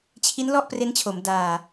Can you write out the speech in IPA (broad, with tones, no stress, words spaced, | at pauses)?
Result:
t͡ɕʰi˦˥nlɔ˥˩ʔpre˦˥nt͡ɕʰo˩˦m daː˨˩